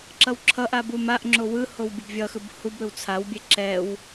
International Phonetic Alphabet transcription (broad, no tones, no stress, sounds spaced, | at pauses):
ǁ ʌ w ǁʰ ʌ ʔ a b u m a ʔ ŋ͡ǁ o w ɯ h o w bʲ o b vʲ ʌ x ɯ b h u b ɾ ɯ w t͡sʰ a w bʲ e ǁ ɛ w